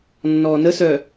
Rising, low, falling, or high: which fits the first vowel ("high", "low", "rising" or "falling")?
low